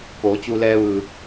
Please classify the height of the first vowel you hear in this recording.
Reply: mid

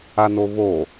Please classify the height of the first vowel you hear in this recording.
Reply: low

